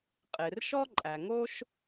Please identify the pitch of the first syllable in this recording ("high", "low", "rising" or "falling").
low